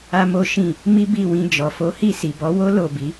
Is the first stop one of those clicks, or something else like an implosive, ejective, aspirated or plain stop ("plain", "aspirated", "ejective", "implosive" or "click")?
plain